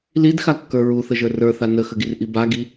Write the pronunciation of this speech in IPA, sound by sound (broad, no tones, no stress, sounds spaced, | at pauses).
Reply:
l i d x a kː ə˞ ɹ u θ ə ʒ ə˞ r ə˞ θ a n ə x ə ɡ i r ʔ i b a ɡ i